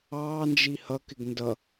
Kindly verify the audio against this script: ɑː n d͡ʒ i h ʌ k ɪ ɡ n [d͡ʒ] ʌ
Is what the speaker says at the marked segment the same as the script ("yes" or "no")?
no